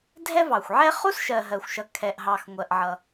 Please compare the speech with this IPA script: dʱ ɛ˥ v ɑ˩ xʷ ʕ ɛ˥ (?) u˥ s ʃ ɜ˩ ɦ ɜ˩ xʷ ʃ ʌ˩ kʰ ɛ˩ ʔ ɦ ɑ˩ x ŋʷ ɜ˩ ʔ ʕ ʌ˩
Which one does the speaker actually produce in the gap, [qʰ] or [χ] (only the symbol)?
χ